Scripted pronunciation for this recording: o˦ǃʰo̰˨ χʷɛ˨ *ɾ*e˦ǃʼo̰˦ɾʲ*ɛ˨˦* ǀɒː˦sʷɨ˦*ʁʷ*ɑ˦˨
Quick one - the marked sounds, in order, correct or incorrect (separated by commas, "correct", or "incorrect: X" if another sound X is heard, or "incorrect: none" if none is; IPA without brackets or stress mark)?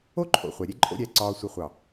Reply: incorrect: ɾʲ, correct, incorrect: χʷ